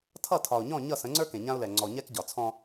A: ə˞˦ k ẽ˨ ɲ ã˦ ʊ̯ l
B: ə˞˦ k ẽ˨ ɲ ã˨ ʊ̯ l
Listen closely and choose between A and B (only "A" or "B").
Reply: A